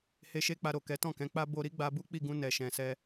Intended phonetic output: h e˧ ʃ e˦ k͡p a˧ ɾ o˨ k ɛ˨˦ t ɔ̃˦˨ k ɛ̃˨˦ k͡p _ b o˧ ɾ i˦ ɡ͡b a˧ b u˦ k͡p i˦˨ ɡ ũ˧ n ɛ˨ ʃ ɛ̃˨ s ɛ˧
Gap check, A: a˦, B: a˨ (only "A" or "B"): A